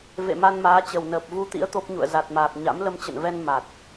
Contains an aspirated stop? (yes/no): no